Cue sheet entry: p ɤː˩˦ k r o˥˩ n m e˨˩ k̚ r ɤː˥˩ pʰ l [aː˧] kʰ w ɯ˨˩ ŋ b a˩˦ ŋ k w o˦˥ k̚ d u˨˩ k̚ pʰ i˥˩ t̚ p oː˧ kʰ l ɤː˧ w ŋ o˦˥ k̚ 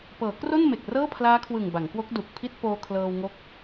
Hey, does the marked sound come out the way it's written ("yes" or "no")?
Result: no